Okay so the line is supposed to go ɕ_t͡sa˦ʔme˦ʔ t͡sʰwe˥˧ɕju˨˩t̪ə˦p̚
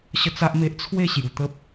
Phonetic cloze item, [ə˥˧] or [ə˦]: ə˦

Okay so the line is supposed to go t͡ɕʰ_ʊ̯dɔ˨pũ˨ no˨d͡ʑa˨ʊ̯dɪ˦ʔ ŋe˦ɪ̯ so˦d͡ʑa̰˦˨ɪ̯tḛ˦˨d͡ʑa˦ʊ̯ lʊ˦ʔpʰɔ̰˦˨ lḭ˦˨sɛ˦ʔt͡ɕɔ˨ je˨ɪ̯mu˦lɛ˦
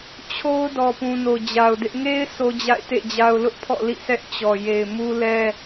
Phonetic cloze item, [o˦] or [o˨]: o˦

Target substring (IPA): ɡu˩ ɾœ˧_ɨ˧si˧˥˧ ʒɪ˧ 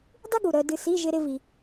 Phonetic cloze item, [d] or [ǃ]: d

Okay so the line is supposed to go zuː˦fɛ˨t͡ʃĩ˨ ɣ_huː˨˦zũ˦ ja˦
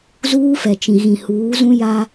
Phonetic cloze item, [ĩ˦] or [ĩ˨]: ĩ˨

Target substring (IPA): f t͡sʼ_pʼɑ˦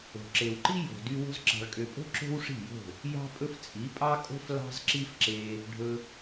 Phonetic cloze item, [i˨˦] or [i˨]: i˨˦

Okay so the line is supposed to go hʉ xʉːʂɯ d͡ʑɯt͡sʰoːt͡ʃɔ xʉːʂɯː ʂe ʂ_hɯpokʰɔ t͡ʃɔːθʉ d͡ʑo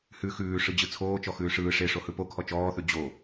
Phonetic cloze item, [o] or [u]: o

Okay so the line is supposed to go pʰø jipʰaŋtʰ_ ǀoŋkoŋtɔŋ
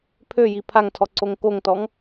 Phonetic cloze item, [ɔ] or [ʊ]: ɔ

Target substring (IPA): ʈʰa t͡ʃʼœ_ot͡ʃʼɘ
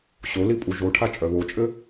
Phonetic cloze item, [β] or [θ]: β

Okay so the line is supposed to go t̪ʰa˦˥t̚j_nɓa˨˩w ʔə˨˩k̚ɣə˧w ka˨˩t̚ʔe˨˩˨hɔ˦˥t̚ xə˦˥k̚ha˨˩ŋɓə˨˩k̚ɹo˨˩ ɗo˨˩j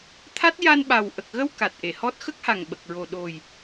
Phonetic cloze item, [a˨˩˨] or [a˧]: a˧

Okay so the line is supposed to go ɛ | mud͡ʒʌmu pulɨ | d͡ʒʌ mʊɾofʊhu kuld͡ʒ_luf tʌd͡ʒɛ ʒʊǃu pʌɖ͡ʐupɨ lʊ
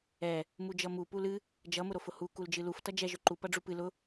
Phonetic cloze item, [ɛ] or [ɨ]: ɨ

